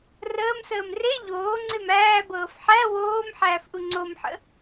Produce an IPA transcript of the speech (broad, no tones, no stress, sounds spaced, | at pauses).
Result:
r əː m s əː m r e ʎ oː ŋ͡ǀ e m æː b ɤː f ħ æ w oː m ħ æː f ʔ u ŋ͡ǀ o m ħ ə̰